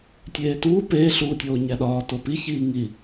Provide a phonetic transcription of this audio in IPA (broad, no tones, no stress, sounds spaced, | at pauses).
tʲ eː t uː p eː ɬ uː tʲ oː ɲ æ ɗ ɒː t o p i ç iː ŋ i